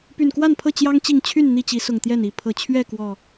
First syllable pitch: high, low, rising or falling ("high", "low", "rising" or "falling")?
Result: low